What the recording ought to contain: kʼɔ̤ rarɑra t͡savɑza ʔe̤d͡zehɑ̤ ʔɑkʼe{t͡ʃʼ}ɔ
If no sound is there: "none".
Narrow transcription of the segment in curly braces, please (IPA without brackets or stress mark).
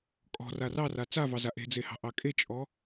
t͡ʃʼ